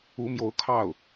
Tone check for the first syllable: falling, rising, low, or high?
rising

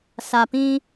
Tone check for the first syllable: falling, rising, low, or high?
low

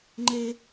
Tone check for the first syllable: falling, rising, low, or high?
high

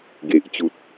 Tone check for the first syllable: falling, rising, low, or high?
low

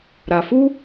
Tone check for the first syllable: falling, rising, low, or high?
low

